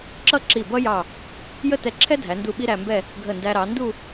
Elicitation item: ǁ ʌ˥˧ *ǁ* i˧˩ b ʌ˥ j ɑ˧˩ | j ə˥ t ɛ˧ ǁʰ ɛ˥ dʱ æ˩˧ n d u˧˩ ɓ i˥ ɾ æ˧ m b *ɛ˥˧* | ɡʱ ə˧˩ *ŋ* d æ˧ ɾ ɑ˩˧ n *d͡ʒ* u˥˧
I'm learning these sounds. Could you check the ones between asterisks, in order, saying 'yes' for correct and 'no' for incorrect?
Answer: yes, yes, no, no

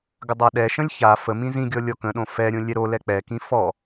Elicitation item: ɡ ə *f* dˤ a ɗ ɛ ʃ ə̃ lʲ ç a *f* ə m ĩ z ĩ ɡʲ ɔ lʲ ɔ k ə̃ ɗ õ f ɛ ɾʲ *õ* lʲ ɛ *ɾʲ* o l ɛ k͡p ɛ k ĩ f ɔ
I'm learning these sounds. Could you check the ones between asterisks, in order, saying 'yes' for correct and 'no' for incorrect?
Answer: no, yes, yes, no

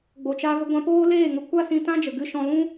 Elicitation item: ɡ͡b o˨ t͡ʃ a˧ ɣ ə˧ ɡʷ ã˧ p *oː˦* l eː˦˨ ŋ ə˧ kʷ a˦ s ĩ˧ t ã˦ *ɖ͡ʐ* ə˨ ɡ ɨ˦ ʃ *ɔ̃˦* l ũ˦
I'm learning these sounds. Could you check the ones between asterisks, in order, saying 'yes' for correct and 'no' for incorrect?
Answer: yes, no, yes

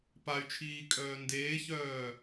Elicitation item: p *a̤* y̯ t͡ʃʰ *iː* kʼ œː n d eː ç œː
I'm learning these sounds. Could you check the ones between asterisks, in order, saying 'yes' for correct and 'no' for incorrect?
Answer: no, yes

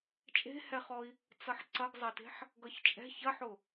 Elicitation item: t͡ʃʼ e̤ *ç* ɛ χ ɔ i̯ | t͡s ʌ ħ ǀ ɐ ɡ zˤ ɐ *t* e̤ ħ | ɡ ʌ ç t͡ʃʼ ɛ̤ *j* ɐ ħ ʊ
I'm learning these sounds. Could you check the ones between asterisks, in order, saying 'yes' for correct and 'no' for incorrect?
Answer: no, yes, no

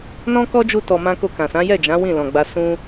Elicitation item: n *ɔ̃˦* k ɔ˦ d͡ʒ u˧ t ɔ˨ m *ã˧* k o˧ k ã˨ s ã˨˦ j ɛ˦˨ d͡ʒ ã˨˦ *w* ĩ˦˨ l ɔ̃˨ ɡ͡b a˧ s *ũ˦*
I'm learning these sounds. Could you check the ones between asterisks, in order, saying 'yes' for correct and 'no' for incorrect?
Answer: yes, yes, yes, yes

